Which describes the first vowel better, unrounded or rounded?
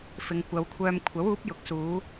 unrounded